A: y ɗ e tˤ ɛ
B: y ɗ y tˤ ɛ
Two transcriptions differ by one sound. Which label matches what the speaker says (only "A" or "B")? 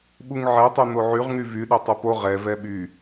A